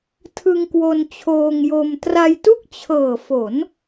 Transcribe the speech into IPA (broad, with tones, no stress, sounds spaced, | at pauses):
tʰ ɯ˧ ŋ k w o˧ n t͡ɕʰ oː˧ ŋ j o˧ m t r a˧ j t u˥˩ k̚ t͡ɕʰ ɤː˨˩ f o˩˦ n